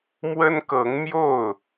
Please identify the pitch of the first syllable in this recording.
high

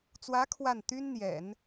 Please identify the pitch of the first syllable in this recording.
rising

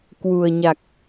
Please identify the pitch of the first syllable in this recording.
low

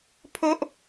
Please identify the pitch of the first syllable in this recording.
high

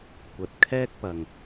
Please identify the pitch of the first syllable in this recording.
low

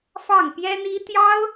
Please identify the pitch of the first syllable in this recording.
falling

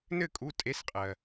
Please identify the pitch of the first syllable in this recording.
falling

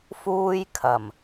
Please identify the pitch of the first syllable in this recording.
high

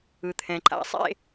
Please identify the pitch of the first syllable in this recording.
low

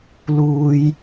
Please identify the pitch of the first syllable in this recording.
high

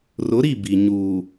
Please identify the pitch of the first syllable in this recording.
rising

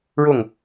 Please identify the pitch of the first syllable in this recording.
falling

